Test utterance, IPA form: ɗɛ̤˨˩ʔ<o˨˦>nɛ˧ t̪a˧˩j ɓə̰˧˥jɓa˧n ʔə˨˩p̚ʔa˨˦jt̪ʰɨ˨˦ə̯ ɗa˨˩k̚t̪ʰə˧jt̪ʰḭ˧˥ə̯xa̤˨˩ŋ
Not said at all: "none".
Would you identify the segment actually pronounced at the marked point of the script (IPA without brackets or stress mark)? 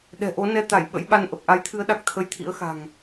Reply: o˨˦